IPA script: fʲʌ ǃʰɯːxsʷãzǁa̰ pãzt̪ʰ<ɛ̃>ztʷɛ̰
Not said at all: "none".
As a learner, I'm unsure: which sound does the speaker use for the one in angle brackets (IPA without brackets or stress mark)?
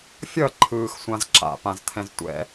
ɛ̃